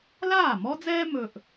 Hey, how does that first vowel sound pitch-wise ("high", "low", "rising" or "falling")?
falling